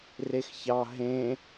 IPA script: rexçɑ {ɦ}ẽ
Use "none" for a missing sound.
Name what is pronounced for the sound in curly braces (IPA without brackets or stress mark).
ɦ